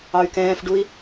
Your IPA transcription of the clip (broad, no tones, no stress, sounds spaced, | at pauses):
ɑ y̯ k ɛ̃ː f ɖ u i̯